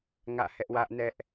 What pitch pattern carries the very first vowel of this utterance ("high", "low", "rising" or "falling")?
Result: falling